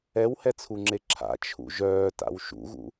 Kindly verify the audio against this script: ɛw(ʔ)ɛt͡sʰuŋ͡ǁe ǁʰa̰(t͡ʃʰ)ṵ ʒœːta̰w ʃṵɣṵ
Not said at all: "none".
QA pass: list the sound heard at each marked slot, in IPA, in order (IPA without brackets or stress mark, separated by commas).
h, t͡ʃʰ